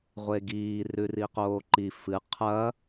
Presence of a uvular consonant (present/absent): present